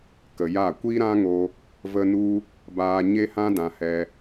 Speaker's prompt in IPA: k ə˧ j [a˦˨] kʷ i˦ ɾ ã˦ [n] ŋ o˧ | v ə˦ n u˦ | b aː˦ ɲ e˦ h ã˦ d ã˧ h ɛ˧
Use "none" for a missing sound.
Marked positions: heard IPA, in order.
a˦˨, none

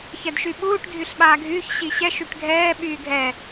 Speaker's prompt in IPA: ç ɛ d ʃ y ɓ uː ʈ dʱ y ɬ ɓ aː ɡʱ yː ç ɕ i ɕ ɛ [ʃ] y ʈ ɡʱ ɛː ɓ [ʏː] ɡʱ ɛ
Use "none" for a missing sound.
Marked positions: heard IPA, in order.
ʃ, yː

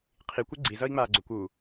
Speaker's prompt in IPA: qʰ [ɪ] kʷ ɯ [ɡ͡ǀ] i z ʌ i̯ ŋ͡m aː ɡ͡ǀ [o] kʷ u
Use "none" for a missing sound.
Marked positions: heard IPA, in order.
i, ɡ͡ǀ, o

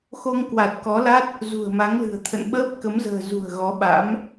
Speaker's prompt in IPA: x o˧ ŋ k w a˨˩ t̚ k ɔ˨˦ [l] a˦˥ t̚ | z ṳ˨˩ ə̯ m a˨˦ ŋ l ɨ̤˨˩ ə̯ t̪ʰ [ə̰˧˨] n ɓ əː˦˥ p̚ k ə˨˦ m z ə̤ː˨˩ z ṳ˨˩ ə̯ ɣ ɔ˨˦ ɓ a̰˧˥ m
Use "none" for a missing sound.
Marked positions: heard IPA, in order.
l, ə̰˧˨

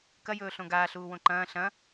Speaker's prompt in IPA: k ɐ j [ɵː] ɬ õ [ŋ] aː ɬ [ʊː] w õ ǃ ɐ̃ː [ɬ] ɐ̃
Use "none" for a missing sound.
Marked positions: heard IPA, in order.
ɵː, ɡ, uː, ɬ

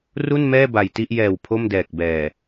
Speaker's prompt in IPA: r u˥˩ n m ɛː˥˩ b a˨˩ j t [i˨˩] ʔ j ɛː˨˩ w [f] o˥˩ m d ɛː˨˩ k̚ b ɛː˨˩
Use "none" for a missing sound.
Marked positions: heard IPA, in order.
i˥˩, pʰ

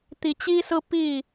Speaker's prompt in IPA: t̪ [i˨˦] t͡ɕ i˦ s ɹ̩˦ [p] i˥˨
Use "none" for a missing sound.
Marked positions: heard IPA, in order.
i˨˦, p

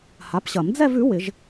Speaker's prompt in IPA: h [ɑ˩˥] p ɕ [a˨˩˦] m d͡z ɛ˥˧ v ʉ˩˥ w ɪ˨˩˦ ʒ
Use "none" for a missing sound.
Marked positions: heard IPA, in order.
a˩˥, ɐ˨˩˦

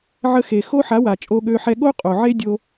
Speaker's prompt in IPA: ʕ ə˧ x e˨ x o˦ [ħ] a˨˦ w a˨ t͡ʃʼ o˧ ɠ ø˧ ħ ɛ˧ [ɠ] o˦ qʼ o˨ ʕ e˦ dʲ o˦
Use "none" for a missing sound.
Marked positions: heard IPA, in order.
ħ, ɠ

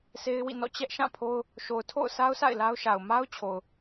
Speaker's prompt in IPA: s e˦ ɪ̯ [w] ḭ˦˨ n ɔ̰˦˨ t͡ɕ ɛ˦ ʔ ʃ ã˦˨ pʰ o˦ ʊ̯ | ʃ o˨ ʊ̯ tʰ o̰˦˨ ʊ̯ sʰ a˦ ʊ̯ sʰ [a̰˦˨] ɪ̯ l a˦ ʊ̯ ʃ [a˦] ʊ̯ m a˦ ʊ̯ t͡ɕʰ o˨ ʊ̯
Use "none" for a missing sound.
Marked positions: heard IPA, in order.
w, a̰˦˨, a˨

